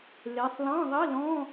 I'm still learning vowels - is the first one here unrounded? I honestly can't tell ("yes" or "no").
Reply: yes